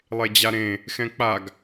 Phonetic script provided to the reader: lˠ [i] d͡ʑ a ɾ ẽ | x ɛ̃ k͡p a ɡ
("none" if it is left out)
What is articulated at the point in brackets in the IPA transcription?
e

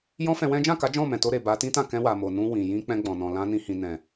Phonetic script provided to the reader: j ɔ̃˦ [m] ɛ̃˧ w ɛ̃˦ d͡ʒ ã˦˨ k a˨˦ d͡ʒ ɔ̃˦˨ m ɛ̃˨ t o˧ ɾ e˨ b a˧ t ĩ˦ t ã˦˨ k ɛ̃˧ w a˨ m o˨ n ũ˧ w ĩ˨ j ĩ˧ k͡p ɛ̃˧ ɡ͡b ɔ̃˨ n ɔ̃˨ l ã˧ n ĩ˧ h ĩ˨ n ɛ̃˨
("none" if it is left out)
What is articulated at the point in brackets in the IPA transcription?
f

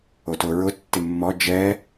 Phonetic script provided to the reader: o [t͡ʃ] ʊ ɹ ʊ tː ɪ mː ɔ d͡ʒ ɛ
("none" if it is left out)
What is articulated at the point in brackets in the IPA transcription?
t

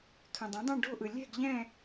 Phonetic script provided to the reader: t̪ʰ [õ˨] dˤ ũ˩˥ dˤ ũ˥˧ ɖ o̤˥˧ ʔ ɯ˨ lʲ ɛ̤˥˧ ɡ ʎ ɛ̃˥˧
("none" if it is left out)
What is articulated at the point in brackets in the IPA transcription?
õ˨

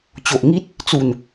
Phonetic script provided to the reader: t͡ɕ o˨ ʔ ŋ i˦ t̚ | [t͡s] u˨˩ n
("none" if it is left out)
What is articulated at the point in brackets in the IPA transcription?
t͡s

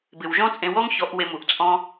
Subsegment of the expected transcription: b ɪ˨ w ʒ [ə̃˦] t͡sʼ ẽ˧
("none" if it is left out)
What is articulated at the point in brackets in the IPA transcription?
ɔ̃˦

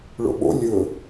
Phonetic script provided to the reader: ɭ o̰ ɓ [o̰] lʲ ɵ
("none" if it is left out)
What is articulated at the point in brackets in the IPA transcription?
o̰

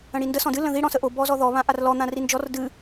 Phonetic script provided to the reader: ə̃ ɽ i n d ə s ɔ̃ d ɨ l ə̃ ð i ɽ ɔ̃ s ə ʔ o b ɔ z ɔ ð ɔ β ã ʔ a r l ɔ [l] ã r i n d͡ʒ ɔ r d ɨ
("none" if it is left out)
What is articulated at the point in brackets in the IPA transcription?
n̪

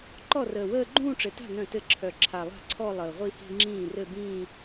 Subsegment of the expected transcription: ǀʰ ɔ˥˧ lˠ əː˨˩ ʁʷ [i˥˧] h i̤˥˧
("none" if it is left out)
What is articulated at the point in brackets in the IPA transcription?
i˥˧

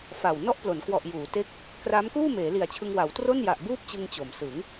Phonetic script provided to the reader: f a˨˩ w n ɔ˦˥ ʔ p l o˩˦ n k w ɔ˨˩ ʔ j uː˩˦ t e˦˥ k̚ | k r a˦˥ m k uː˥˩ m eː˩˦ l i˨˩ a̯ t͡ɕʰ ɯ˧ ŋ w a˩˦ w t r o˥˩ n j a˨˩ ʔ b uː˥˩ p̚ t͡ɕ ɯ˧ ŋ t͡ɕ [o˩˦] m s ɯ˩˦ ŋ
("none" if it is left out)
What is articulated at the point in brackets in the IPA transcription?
o˩˦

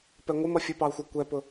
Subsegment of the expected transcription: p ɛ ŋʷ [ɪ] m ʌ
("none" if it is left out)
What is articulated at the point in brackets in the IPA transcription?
ɪ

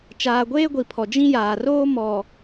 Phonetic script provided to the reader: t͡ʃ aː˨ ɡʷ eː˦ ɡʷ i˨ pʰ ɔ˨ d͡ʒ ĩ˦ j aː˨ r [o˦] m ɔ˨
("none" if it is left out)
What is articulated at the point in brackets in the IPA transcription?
oː˦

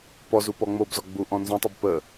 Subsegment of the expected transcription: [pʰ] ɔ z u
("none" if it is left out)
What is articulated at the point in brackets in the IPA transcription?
p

